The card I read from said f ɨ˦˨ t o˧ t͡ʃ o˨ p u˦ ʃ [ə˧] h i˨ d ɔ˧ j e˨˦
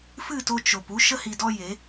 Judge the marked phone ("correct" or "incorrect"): correct